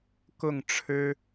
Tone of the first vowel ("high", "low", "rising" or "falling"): falling